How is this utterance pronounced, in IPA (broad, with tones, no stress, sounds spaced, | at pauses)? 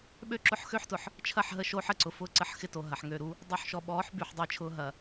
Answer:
ɓ ø˦ ǁ ʊ˦ ħ x ø˦ ħ t ʊ˨ ħ | t͡ʃʰ ɐ˦˨ ħ ɦ ə˦˨ ʃ oː˦ ħ ə˨ ǀ ʊ˦ f ʊː˦ ǀ ə˦˨ ħ x ɪ˦ t o˨ ɦ ɐ˨ ħ ŋ ø˦˨ ɾ u˦ | dˤ u˨ ħ ʃ ɔ˨ ɓ ɔː˨˦ ħ b y˨ ħ dˤ ɪ˦˨ t͡ʃʰ ʊː˦ ɦ ɐ˨